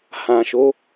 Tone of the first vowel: low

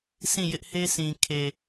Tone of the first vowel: falling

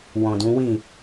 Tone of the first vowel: low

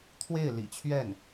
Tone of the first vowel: falling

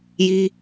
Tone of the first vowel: high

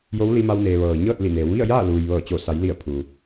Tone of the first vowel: rising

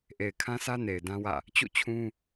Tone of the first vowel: low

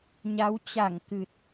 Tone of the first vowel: rising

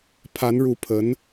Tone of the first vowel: rising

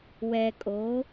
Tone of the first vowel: low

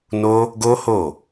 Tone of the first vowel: high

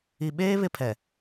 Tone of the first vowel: low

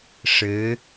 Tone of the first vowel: rising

